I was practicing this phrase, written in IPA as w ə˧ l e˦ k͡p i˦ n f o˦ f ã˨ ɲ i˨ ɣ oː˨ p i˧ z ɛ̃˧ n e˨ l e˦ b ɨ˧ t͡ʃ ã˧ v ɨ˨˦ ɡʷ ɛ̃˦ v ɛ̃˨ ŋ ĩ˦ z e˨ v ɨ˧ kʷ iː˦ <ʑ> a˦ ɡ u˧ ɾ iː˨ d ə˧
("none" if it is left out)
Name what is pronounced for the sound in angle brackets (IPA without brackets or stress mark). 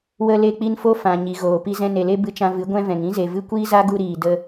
z